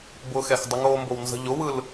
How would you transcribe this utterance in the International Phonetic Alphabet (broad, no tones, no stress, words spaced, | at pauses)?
bʊxɛx dˤəŋoːmbownzə̤ ʎʊwɯl